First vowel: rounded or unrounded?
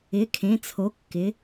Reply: unrounded